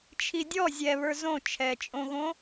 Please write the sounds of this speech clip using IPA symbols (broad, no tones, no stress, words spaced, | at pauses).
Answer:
t͡ʃʰidʲɔ zʲɛβə˞ zõ t͡ʃʰɛt͡ʃʼõɣõ